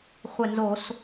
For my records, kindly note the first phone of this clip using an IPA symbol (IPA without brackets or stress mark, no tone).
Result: χʷ